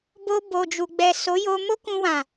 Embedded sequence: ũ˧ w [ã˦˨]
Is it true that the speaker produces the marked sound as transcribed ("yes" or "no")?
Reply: no